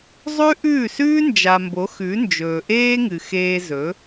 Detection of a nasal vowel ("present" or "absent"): absent